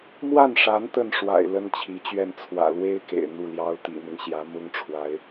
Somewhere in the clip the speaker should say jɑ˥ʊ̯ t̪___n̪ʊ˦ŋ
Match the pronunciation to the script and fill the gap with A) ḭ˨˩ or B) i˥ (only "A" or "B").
A